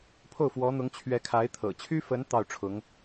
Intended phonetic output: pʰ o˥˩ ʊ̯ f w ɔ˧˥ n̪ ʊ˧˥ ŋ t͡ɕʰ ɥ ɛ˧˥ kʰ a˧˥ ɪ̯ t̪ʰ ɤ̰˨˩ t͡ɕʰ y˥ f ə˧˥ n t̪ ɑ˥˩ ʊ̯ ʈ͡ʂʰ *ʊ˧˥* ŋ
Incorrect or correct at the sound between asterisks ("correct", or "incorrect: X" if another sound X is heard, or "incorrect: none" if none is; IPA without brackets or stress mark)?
correct